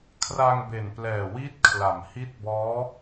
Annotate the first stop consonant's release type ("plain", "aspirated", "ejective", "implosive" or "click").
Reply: aspirated